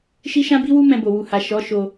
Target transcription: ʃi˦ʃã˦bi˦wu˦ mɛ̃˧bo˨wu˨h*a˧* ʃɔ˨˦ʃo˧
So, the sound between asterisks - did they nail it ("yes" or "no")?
no